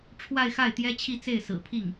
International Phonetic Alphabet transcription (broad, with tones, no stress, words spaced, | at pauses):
ʈ͡ʂʰwa˥˧ɪ̯xa˥˩ɪ̯ t̪jɛ˥t͡ɕʰi˥˧t͡se˥˩ɪ̯ sɹ̩˨˩pʰi˥˩ŋ